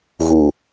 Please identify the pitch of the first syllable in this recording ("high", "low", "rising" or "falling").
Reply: low